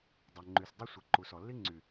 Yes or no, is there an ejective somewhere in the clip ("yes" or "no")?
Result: no